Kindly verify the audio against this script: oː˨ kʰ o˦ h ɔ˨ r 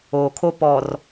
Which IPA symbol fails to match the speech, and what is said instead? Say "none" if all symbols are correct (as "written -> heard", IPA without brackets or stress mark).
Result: h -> p